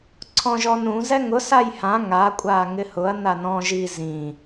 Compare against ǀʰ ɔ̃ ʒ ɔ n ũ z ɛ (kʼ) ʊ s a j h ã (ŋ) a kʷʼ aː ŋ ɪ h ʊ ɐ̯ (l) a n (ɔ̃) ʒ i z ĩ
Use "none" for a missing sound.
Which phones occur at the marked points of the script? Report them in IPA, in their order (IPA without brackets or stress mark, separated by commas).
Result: ŋ, ŋ, n, ɔ̃